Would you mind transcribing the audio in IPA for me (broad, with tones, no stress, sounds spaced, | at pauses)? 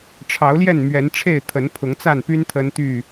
ʈ͡ʂʰ ɑ˨˦ ʊ̯ l j ɛ˥˨ n m ɥ ɛ˨˦ n ʈ͡ʂʰ e˥˨ ɪ̯ t̪ʰ ə˨˦ n pʰ ʊ˨˦ ŋ t͡s a˥˨ n p y˦ n t̪ʰ ə˦ n t̪ y˥˨